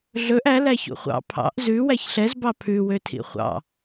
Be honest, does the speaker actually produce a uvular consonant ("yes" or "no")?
yes